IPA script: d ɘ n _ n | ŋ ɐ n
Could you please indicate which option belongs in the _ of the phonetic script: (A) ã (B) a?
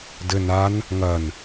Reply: B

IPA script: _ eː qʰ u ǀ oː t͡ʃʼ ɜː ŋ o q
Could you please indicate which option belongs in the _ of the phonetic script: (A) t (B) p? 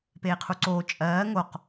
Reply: B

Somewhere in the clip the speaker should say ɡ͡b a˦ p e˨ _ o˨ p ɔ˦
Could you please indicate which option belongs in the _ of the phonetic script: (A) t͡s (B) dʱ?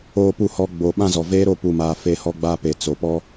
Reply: A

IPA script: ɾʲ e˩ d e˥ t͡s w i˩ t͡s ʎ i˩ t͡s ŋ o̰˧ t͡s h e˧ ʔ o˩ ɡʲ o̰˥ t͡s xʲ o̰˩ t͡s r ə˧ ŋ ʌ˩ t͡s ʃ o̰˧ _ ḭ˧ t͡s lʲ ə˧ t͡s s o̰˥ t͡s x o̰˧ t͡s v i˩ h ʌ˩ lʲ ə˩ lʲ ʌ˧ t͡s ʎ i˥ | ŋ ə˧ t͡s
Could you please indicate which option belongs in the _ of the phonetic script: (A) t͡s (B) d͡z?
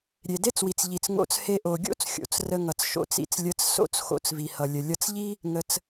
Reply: A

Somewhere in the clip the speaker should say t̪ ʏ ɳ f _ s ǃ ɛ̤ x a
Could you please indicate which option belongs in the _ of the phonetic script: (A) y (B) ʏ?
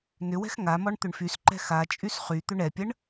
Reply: A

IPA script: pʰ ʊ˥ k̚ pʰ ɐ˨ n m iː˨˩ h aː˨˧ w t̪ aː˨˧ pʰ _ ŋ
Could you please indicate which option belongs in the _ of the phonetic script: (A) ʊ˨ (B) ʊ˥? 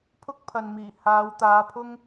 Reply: B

